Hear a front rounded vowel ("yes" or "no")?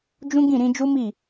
no